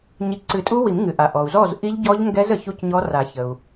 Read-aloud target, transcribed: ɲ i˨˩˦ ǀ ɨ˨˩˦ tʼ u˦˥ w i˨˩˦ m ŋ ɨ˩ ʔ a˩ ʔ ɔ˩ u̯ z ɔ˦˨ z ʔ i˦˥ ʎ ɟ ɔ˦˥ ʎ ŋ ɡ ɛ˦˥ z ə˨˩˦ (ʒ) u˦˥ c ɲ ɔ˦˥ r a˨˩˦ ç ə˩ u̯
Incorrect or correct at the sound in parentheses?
incorrect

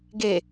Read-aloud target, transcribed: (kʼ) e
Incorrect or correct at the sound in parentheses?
incorrect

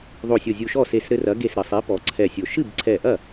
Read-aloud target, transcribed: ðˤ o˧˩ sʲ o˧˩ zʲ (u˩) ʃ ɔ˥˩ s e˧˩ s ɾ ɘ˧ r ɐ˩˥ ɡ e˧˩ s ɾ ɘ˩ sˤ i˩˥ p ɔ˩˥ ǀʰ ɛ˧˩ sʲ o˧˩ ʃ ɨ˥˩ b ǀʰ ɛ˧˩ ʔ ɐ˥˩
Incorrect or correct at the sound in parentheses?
incorrect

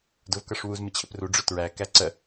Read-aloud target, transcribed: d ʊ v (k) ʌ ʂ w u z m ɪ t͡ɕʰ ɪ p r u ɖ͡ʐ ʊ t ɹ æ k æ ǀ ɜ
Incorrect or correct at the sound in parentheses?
correct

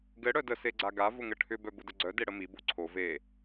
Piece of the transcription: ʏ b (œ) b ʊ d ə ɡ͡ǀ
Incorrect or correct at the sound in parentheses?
correct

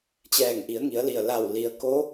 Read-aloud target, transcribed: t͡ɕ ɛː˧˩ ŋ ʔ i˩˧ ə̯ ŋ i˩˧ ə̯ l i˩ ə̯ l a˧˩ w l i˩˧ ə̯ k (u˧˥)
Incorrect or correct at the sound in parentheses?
incorrect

